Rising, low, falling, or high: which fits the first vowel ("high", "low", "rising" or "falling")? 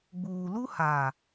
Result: low